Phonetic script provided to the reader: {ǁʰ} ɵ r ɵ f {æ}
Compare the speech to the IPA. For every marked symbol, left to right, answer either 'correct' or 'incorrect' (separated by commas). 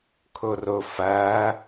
incorrect, correct